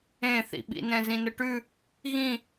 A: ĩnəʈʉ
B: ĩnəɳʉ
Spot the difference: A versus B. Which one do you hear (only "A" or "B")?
A